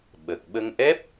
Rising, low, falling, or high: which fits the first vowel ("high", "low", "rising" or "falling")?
low